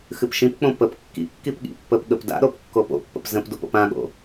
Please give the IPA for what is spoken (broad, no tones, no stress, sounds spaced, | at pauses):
x ɨ p ʃ ĩ p k͡p õ p ə p kː ḭ kː i p ɠ ḭ pː ə p ɠ ə p d a̰ ɾ o p kː o p o̰ pː ə̰ p z ə̃ p d o p o̰ p ã ɠ o̰